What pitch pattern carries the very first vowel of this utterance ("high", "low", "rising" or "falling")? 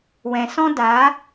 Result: low